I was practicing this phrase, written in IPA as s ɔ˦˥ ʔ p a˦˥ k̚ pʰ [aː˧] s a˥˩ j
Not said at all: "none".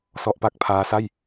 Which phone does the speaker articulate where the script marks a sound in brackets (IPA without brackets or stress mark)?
aː˦˥